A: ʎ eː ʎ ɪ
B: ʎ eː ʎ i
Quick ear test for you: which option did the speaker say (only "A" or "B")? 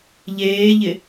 A